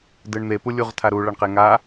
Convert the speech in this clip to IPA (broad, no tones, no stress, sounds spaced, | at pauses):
d ɯ ɳ n̪ e p u lʲ u ʁ tʰ a ɾ u ɭ ʌ ɳ q e ŋ a